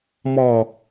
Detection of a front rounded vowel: absent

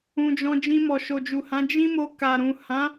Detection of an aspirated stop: absent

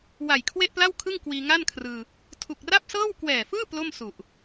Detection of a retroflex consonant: absent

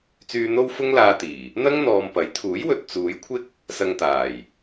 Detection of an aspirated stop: present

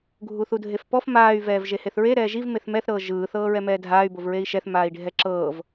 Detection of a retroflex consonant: present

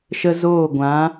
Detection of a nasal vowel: present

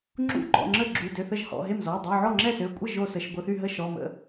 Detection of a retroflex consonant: absent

